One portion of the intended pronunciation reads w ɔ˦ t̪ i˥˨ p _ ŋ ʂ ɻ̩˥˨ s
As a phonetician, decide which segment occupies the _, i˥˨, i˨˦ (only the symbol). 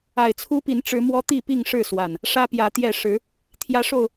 i˥˨